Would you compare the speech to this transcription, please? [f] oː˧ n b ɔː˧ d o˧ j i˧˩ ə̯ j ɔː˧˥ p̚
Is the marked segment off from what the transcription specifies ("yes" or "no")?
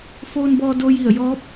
no